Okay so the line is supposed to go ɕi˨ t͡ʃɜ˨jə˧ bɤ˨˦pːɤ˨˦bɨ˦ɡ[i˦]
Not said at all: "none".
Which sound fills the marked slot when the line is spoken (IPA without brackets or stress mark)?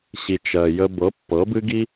i˦